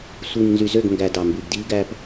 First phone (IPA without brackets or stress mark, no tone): sʷ